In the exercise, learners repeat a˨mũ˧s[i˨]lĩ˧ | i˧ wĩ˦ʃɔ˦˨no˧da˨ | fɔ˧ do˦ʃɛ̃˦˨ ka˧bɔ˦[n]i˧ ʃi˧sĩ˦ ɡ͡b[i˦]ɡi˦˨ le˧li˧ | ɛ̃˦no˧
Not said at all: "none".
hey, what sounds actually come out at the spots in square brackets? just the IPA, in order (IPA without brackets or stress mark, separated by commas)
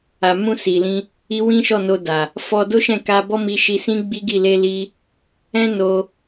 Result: i˨, m, i˦